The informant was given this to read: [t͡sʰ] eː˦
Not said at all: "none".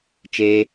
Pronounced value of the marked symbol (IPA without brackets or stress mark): t͡ʃ